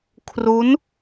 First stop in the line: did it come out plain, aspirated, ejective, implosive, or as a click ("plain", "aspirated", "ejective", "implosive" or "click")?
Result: aspirated